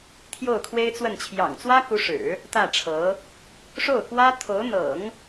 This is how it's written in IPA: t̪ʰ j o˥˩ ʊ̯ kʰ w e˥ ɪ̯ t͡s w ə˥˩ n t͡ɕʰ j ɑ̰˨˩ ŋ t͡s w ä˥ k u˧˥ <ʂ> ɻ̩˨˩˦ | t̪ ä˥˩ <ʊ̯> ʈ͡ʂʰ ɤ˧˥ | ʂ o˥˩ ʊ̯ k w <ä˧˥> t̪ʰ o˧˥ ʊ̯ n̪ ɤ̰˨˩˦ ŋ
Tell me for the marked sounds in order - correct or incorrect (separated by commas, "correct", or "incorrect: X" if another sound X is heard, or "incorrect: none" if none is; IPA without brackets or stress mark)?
correct, incorrect: none, incorrect: ä˥